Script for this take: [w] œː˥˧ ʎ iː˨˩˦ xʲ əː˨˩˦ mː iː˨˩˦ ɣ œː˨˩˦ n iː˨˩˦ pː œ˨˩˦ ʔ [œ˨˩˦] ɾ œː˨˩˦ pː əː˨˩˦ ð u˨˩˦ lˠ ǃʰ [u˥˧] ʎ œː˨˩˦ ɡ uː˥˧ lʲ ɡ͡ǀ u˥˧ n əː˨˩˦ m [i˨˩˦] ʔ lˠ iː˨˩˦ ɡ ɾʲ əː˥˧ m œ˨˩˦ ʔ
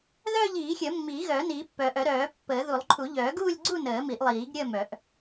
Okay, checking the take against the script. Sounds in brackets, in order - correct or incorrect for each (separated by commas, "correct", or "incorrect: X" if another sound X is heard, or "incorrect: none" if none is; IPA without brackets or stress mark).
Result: incorrect: ð, correct, incorrect: u˨˩˦, correct